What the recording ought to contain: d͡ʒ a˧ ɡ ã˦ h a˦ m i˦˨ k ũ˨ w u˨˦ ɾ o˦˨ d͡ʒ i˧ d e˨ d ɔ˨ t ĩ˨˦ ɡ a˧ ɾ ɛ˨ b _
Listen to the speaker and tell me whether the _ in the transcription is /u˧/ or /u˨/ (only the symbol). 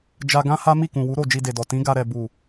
u˨